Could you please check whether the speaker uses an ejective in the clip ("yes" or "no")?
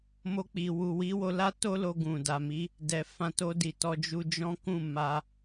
no